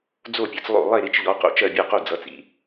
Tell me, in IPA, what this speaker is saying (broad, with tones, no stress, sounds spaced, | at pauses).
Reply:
d͡z o˥˨ pʲ ʌ˨˥ t͡s lˠ o̰˥˨ lˠ e˥˨ ɾ i˨˥ t͡ʃ ʎ ɔ˨˥ q o̰˥˨ t͡ʃ ɜ˥˨ bʲ ɔ˥˨ q o˥˨ d͡z ʌ˨˥ t͡s ḭ˨˥